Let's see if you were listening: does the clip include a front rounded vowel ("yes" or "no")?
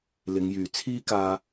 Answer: yes